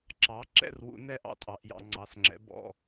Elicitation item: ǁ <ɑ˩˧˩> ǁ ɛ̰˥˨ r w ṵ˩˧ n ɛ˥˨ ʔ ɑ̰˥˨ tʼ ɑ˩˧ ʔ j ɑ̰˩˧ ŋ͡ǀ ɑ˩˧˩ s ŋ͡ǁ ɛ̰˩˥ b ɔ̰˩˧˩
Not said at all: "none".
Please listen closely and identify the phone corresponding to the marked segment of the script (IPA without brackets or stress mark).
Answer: ɑ˩˥